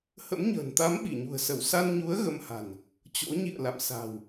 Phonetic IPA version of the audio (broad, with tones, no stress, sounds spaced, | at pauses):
h ə̰˧˥ m ɲ ə̤ː˨˩ n t̪ a˨˦ m ɓ i˧˩ ɲ ṳ˨˩ ə̯ s ə˧˩ w s a˧ n ɲ u˨˦ ə̯ ɣ ə˧ m h a̤˨˩ n | t͡ɕ o̰˧˥ ɲ ḭ˧˨ ə̯ l a̰˧˨ m s a̤˨˩ w